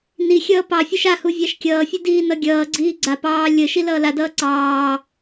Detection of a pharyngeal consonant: absent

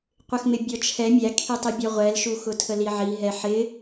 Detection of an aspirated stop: present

